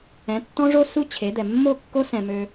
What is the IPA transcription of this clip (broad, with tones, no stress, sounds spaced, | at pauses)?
ɛ̃˨˦ tː ɔ̃˦ ʐ o˦ s u˦ t͡ɕʰ e˨˦ d̪ ɛ˨ mː o˦˨ kː o˦ s ɛ̃˨ m ø˦